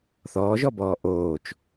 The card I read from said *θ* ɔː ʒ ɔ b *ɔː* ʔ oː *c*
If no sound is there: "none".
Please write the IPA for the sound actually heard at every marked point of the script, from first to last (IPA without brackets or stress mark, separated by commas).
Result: θ, ɔː, t͡ʃ